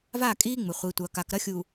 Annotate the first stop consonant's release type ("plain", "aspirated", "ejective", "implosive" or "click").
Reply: ejective